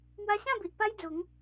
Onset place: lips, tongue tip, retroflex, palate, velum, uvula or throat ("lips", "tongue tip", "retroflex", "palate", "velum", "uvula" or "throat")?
lips